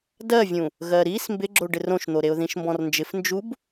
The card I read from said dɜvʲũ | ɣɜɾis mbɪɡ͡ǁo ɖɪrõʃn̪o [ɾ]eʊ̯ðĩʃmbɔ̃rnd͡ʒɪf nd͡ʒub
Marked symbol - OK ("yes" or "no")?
yes